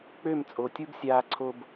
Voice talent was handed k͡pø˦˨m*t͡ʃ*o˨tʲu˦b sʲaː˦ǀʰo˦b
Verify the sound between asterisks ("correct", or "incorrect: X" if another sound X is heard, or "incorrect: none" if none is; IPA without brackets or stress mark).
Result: incorrect: t͡sʼ